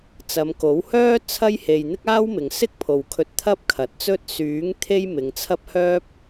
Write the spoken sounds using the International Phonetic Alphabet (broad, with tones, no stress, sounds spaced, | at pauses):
t͡s ɐ˨˧ m k o˨˥ w h œː˥ t͡sʰ ɐ˥ j h e˧ j n̪ ɪ˥ k̚ aː˥ w m ɪ˨ ŋ s ɪ˥ k̚ pʰ o˨ w kʰ ɵ˧ t̚ t̪ʰ ɐ˥ p̚ kʰ ɐ˨ t̚ t͡s ɵ˥ t̚ s yː˨˥ ŋ t̪ʰ e˥ j m ɪ˨˧ ŋ t͡sʰ ɐ˥ p̚ h œː˥ p̚